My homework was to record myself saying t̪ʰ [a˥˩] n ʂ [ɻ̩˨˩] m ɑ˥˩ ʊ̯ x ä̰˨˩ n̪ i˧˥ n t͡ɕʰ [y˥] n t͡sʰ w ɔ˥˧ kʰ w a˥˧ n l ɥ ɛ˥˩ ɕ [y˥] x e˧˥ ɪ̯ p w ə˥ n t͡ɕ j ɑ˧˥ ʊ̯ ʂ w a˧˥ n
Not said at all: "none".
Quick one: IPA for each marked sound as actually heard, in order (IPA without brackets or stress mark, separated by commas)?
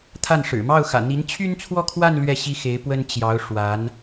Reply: a˥˩, ɻ̩˨˩, y˥, i˥